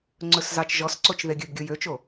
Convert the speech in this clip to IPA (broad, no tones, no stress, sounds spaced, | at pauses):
ŋ͡ǀ ɵ s z ɑ t͡ʃ ʒ ɔ s ǀ o t͡ʃ ð e ɡʲ ɵ b ɡʲ o j ø t͡ʃ o